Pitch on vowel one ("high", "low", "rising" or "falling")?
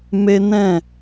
high